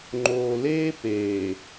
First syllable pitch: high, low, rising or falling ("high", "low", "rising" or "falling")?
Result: low